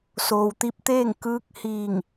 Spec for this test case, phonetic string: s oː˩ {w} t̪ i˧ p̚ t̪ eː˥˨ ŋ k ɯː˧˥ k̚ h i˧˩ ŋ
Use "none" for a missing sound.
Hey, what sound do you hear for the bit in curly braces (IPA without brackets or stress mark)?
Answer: w